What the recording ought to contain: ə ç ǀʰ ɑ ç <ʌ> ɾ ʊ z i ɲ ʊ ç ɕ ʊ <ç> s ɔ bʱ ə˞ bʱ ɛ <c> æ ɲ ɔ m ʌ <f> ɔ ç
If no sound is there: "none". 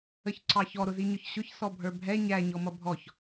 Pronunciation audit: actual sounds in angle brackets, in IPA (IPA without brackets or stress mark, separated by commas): ɔ, ç, ɲ, bʱ